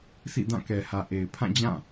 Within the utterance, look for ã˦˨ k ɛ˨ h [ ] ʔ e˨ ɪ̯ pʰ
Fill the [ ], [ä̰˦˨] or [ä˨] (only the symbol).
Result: ä˨